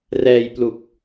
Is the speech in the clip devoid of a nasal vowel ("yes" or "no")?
yes